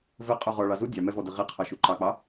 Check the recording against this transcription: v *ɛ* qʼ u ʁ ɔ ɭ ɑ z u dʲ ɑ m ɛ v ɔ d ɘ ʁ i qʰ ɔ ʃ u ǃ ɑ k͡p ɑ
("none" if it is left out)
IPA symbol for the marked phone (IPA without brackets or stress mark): ɘ